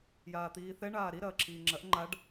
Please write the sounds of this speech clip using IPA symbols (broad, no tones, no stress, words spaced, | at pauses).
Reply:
jaːt̪iːθɛ ɳaːɾi ɾɐːǁʰiːŋ͡ǁɐʔ ŋ͡ǃaɖ